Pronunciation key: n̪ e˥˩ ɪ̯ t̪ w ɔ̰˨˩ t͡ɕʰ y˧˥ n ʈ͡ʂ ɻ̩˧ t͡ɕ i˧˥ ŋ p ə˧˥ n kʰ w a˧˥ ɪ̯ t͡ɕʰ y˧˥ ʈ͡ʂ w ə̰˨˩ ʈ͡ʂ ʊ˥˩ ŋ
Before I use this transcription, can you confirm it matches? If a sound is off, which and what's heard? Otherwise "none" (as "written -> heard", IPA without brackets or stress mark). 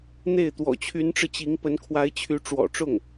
ə̰˨˩ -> ɔ̰˨˩